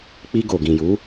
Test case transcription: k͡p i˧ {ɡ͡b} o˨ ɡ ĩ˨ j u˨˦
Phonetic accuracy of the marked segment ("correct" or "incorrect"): incorrect